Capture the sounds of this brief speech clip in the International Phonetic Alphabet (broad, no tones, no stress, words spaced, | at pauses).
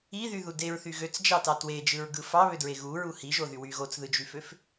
iðyðu deɹθy ɣøt͡sd͡ʒɑtɑ twed͡ʒɯɹɡɯ fɑβødɹe ɣuɹu hiʒoðy wy ɣot͡sðɯd͡ʒyføf